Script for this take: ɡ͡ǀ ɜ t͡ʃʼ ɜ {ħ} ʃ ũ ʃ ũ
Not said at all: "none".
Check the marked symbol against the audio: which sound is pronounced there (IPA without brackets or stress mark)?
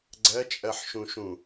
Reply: ħ